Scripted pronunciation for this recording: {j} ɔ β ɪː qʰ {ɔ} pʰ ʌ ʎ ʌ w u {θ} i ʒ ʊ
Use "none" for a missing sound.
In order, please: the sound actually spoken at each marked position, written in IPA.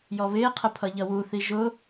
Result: j, ə, θ

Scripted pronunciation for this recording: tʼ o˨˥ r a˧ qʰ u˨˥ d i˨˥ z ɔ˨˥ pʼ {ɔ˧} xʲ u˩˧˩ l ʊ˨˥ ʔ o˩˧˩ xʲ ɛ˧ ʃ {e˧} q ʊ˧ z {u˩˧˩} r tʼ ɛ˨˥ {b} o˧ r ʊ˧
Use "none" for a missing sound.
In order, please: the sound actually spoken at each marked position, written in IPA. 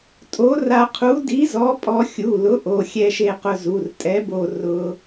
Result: ɔ˧, e˧, u˩˧˩, b

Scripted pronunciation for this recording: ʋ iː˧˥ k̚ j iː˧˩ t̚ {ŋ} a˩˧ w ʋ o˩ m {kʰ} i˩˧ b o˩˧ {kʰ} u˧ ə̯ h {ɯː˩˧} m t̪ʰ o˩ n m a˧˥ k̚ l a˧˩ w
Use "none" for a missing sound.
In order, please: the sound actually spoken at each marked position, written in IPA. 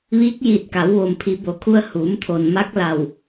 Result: k, pʰ, kʰ, uː˩˧

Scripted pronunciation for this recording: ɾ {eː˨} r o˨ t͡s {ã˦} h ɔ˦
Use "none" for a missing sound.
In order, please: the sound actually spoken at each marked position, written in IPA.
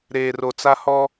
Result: eː˨, a˦

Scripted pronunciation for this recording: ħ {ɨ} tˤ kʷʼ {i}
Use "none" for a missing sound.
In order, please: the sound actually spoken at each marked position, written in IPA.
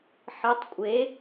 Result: ɨ, e

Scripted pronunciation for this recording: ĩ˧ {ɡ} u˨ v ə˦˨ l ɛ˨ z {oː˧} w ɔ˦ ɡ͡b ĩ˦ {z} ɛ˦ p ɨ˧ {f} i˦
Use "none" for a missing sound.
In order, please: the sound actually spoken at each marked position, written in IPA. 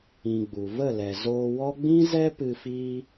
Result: ɡ͡b, oː˧, z, f

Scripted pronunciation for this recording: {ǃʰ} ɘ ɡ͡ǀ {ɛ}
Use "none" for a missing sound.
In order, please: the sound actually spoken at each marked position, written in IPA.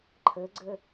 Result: ǃʰ, ɘ

